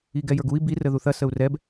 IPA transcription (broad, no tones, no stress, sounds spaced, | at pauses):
i ɡ ɛ j ə˞ ɡ u i̯ b i r ə ð u θ ɐ s ə u̯ r ɛ b